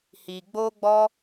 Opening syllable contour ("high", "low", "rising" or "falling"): low